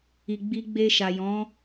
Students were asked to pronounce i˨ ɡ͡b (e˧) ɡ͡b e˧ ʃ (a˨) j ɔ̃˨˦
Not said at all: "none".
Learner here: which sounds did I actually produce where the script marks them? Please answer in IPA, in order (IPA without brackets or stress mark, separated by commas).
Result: i˧, a˨